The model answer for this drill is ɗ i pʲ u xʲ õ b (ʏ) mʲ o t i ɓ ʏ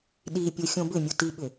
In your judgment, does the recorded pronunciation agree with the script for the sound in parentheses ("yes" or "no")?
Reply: yes